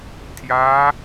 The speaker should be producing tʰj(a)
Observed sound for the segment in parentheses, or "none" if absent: a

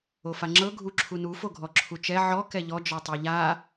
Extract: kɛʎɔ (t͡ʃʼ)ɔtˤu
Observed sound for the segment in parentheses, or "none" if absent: d͡ʒ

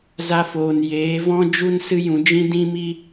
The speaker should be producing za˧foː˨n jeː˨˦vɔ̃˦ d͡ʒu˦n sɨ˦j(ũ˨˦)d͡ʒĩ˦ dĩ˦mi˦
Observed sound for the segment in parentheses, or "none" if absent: ũ˨˦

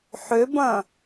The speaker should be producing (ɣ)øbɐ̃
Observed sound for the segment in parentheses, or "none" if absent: ħ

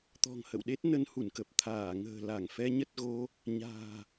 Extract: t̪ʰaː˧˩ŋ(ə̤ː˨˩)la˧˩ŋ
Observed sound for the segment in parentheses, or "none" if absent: ə̤ː˨˩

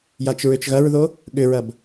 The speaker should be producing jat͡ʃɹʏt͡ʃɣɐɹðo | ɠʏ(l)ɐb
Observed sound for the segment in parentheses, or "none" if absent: ɹ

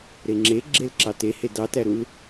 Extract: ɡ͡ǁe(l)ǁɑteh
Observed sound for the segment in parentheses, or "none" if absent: l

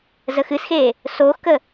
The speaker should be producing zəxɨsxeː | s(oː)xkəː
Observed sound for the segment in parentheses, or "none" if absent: oː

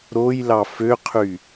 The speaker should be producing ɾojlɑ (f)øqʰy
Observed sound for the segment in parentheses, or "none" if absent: f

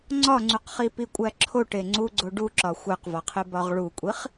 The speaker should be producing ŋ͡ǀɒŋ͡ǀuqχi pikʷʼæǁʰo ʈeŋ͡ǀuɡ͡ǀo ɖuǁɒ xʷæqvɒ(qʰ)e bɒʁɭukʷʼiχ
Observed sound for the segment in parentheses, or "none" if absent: qʰ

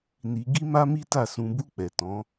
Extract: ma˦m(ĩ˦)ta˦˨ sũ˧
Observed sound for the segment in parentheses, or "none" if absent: i˦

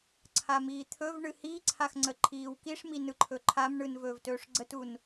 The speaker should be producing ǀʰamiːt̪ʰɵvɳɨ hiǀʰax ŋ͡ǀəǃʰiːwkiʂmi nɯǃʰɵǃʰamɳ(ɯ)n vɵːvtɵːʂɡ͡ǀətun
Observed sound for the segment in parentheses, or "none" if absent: ɯ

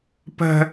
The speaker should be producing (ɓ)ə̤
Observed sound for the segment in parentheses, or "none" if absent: p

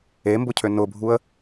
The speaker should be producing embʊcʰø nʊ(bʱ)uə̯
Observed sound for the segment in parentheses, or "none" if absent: bʱ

